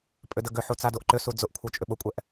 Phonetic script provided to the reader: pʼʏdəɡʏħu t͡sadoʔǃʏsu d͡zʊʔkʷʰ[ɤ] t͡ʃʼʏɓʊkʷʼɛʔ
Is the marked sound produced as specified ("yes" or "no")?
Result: yes